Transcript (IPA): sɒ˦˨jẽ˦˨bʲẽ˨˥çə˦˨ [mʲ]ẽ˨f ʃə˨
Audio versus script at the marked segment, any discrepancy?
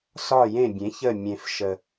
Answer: no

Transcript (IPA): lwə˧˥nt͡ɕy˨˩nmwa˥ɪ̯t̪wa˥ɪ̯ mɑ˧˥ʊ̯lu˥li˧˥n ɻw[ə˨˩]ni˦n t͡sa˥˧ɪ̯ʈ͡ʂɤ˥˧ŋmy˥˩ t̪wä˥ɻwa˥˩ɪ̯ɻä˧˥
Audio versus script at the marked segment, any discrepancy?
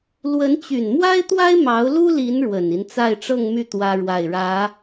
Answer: no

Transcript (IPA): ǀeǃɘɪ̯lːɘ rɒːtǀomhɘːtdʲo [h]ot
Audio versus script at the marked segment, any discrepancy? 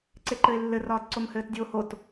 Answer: no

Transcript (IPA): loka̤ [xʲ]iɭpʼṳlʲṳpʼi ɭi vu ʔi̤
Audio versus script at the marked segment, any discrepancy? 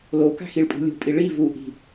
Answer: yes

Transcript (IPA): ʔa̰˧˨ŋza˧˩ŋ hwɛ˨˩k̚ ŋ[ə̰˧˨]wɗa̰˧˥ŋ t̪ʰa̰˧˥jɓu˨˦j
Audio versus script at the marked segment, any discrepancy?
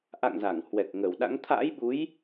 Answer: yes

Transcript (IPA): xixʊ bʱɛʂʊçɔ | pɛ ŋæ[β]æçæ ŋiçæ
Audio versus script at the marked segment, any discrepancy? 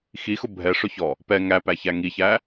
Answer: yes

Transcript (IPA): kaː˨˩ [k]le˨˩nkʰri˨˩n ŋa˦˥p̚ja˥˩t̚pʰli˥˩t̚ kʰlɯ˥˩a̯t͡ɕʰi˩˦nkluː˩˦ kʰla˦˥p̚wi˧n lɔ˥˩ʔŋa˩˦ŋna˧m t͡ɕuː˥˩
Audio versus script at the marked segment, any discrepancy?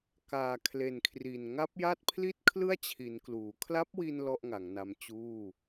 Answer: yes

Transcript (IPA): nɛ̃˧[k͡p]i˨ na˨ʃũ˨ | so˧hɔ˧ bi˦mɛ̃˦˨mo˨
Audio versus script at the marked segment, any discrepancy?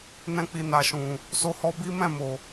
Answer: no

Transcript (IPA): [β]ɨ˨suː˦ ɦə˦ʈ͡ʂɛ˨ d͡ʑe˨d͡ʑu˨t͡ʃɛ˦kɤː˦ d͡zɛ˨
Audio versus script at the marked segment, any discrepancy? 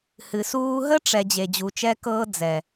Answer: yes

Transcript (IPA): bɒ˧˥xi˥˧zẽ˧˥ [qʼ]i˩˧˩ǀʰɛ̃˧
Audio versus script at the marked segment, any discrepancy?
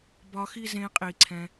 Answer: no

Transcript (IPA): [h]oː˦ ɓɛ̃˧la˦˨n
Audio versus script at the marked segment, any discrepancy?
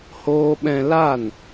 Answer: no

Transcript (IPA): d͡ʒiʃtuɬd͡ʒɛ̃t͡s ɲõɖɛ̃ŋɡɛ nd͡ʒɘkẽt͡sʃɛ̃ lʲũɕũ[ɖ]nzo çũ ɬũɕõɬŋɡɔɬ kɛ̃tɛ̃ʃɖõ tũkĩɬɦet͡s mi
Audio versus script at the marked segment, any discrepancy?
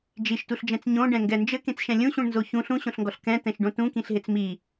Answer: yes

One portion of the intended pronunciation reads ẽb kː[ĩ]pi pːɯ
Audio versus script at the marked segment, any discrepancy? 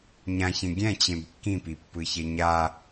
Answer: no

